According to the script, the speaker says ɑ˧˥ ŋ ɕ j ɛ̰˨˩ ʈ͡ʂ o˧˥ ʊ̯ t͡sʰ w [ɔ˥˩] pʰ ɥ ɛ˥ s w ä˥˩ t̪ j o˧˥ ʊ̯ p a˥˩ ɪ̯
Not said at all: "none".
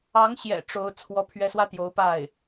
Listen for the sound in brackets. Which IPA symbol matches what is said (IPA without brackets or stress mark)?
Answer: ɔ˥